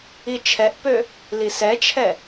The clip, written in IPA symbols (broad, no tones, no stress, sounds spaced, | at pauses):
i t͡ʃʰ ɛ ʔ p ø | l i s ɛ t͡ʃʰ ɛ